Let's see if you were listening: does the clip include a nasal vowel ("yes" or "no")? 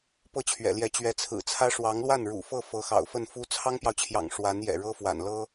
no